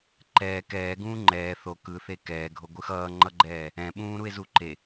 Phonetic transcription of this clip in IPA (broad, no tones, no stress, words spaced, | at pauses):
ǃɛː kɛːɡũː ŋ͡ǃɛː θo kɯθe kɛːɡʱoɡʷɯ xʌːŋ͡ǃʌɡ͡ǃɛː | ɛ̃ɓũːɾue̯zu ǃe